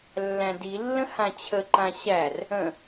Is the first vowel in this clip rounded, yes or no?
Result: no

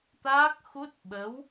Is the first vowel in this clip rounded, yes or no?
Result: no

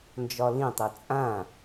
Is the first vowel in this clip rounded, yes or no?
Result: yes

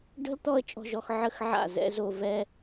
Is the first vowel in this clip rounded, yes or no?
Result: no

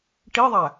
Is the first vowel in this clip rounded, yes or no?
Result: no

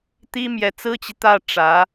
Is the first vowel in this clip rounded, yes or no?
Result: no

